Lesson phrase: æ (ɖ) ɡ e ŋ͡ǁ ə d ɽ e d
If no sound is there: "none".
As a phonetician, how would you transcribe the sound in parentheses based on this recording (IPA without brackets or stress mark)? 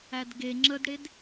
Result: d